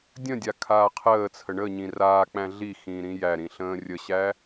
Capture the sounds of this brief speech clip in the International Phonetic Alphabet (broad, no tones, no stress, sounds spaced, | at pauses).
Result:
dʲ ə̃ dʲ a kʰ aː qʰ əː t͡sʰ ə ɳ ə ɲ ĩ r aː k͡p æ̃ ɮ i x ĩː ɾ ĩ j æ ɾ ĩ ɬ ə̃ː rʲ ə ɕ æ